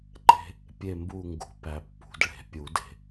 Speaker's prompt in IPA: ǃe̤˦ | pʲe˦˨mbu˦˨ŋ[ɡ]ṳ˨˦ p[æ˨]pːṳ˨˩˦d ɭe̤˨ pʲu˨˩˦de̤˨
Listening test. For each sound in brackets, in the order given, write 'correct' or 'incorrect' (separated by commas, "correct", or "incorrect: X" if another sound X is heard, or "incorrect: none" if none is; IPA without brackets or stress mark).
correct, correct